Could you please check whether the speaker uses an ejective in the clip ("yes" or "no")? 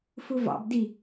no